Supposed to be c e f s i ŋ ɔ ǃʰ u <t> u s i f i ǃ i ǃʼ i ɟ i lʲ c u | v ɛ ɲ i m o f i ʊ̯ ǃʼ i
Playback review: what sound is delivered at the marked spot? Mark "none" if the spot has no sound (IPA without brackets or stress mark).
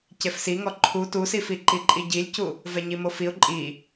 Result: t